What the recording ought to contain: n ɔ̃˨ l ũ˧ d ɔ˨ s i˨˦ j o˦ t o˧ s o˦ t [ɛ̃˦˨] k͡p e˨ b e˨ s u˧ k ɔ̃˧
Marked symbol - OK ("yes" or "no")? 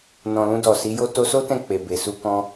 yes